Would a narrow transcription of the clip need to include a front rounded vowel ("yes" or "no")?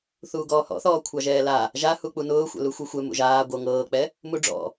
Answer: no